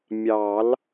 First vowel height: low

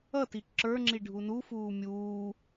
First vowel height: mid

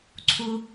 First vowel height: high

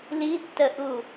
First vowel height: high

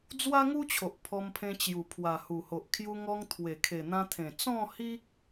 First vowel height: low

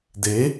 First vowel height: mid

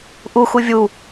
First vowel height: high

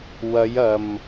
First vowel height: low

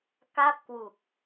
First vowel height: low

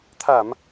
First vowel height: low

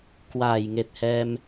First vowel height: low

